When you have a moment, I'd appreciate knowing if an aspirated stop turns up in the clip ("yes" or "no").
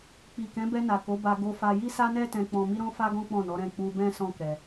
no